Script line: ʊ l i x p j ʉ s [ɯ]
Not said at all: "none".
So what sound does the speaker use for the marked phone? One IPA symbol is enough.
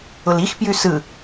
ɯ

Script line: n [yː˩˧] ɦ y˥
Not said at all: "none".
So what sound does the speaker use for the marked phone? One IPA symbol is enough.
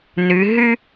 y˩˧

